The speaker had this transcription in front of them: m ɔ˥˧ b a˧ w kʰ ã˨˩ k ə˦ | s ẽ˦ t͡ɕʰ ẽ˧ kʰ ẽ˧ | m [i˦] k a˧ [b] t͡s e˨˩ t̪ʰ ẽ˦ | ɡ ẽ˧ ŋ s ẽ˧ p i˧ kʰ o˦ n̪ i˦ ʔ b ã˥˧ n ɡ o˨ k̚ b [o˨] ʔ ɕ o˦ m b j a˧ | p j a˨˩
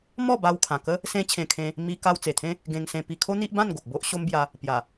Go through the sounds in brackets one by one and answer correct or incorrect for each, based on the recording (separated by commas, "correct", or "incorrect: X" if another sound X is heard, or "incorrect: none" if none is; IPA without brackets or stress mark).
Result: incorrect: i˧, incorrect: w, incorrect: o˦